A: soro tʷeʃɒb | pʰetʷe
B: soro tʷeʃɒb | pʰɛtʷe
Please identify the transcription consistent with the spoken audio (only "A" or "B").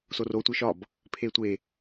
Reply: A